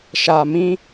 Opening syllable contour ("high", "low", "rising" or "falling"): low